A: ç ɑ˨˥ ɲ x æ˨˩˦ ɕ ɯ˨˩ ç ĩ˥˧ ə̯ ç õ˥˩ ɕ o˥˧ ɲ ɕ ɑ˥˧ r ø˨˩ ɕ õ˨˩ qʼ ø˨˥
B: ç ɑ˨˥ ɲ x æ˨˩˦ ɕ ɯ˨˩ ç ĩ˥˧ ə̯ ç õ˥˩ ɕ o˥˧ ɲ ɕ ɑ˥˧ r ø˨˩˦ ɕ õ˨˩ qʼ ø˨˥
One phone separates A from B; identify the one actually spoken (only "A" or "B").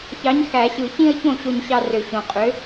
A